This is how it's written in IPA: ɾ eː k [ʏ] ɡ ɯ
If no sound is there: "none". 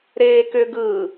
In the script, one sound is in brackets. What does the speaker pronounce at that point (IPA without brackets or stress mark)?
ʏ